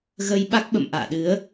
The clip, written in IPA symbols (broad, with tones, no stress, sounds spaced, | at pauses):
ɣ ə˧ j ɓ a˦˥ k̚ ɓ ə̰˧˨ m ʔ a̰ː˧˨ ɗ ɨ˨˦ ə̯